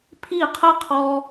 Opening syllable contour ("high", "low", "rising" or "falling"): falling